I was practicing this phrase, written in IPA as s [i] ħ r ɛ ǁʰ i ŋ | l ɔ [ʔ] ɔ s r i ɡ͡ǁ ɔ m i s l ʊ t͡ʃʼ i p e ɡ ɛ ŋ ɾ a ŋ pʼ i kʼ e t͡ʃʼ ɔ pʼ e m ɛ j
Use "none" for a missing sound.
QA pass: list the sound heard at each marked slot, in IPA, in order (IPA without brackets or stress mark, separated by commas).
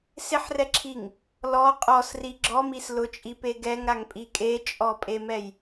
ɪ, qʼ